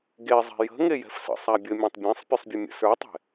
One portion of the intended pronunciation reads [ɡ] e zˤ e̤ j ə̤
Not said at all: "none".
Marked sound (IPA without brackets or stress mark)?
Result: ɡ